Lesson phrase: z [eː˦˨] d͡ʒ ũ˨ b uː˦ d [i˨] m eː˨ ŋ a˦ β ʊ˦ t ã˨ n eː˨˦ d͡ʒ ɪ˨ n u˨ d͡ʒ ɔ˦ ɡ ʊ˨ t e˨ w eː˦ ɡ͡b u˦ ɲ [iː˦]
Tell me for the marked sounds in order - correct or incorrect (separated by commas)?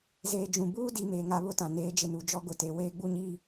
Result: incorrect, correct, correct